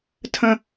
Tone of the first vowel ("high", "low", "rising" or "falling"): falling